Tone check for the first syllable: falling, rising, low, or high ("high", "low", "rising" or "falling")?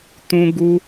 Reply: high